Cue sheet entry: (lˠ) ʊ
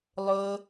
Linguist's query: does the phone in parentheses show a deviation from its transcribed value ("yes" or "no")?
no